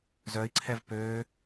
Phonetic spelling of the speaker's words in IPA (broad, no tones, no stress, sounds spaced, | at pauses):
z œ i̯ ǀʰ ɛ v p øː